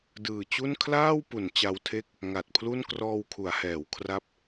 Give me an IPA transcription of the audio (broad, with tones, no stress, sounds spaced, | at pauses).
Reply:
d ɯː˨˩ t͡ɕ u˥˩ n kʰ l aː˥˩ w p u˩˦ n t͡ɕ a˧ w tʰ e˥˩ k̚ | ŋ a˨˩ t̚ pʰ l u˥˩ n k r ɔː˧ w kʰ u˩˦ a̯ h ɛː˩˦ w kʰ r a˦˥ p̚